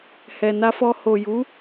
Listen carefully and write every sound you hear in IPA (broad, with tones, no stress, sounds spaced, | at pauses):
h ɛ˨ n a˧ f ɔ˧ h o˨ j u˨˦